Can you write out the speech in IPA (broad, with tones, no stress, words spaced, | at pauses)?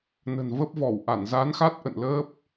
nə̤˨˩nvə˦˥p̚vɔ˧˩wʔa˧˩n za˨˦nxa˦˥t̚ʔə̰˧˨n ləː˦˥p̚